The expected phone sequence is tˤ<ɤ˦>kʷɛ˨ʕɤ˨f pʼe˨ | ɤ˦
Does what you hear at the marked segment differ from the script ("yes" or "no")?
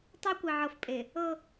no